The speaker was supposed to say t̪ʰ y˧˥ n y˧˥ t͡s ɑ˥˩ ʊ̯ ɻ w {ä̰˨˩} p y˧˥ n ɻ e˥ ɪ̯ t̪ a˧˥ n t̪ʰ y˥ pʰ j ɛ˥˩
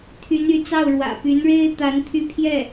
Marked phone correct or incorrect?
correct